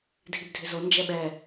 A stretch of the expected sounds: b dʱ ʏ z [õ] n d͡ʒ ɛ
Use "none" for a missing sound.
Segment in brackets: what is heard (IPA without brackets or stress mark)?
o